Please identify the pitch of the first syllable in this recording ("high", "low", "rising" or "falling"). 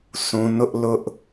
low